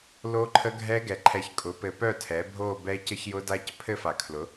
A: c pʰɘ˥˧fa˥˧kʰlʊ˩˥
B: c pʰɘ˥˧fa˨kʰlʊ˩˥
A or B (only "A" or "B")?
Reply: B